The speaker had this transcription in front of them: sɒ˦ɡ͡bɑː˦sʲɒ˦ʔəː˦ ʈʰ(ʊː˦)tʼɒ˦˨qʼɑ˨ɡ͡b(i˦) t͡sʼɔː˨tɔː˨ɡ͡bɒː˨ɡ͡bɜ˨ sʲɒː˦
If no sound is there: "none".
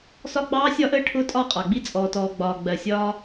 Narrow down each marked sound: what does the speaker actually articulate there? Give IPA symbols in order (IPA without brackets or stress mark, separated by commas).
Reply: ʊː˦, i˦